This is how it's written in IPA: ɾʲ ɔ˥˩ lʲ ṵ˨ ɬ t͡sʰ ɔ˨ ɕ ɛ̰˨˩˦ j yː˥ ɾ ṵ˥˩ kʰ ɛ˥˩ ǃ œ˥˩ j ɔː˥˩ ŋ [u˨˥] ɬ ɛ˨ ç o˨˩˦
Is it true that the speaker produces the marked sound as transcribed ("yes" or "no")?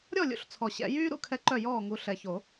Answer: yes